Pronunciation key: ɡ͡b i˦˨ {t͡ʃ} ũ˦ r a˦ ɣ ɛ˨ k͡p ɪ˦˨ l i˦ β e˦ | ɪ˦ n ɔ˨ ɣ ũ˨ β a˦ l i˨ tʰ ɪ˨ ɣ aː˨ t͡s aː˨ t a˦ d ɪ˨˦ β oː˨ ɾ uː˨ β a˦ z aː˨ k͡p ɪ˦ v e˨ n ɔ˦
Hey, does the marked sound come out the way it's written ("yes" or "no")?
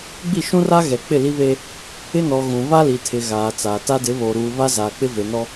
no